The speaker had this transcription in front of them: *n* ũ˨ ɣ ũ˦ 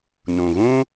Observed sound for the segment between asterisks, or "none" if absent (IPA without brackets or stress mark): n